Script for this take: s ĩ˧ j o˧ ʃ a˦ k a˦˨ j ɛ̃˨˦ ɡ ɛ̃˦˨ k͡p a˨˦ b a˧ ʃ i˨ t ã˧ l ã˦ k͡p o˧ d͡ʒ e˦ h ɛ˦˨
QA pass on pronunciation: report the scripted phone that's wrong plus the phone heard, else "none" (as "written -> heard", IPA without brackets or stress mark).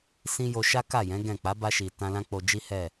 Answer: e˦ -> i˦